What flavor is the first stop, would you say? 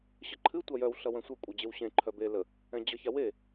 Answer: click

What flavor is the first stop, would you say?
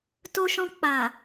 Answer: plain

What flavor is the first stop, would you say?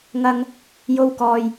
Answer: plain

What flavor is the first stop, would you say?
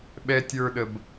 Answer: implosive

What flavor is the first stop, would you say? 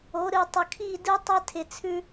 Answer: plain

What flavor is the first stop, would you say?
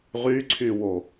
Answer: click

